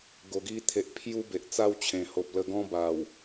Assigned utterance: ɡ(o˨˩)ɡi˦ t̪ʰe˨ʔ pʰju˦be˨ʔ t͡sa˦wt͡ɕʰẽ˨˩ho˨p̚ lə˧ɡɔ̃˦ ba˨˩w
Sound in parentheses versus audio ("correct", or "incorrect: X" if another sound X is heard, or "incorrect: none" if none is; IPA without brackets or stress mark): incorrect: o˧